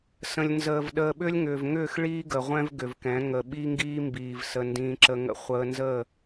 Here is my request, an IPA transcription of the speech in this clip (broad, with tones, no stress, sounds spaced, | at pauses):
s ə̃˨ lʲ n z əː˨ v ɗ əː˨ ɓ ʏː˦ lʲ ŋ ʏː˨ v ŋ ʏː˦˨ x ɭ iː˦ ɡ ə˨ ʁʷ ɛ̃˦ v ɡ ʏ˨ v k ɛ̃˨˦ ŋ ə˨ ɓ i˦ ŋ ɡ iː˦ m b iː˨ v s ə˦ n d ĩː˦ ǁ ə˦ ŋ ə̰˦ χʷ əː˦ n z ə˦˨